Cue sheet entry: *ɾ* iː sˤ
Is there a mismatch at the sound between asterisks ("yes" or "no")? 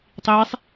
yes